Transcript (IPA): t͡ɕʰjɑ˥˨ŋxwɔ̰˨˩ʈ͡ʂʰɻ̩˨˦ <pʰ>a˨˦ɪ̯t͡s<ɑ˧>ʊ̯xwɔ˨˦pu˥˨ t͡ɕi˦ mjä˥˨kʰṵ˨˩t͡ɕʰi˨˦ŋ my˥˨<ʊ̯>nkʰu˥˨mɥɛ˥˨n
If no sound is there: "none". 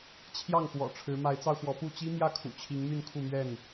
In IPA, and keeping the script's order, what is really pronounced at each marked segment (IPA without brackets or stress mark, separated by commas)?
m, ɑ˧, none